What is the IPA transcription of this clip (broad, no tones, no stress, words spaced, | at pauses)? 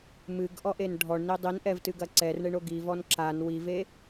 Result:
mɨɡʔɔʔen ɖʱɔɳni dˤinʔɛvtɨɡɐ ǀɛrɳeɳo ɡivɔn ǁan wive